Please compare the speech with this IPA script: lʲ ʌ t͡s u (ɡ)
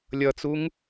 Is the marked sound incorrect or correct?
incorrect